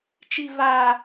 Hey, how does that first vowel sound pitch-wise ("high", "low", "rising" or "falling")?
low